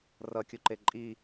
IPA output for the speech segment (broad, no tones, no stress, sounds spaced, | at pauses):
r ʌ kʲ u ǃ e ǃʼ i